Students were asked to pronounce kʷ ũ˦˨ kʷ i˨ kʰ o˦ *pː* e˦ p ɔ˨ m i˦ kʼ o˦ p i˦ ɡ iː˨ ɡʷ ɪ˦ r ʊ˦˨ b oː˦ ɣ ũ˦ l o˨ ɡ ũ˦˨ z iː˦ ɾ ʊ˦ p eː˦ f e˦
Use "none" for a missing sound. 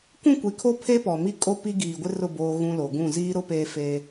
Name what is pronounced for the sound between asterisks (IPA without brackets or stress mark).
pʰ